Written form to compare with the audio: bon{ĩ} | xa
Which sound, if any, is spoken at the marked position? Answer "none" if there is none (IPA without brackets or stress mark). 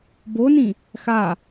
ĩ